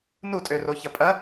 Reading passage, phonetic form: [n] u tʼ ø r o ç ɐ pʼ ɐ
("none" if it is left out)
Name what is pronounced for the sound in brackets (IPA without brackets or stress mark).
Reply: n